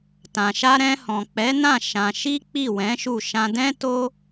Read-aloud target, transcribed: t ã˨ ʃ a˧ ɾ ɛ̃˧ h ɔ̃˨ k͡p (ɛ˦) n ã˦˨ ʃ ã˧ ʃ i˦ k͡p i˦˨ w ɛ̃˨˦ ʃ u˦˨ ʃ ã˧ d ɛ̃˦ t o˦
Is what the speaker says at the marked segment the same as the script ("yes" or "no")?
no